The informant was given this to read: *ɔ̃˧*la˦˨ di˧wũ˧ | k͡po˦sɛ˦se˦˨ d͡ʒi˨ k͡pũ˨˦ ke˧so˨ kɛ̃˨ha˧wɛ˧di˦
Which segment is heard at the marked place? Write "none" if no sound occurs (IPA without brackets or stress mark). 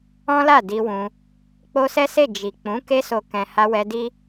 ɔ̃˦